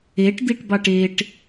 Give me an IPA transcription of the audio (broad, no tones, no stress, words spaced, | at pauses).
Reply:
eʈd̪iʈbɑʈ eʈ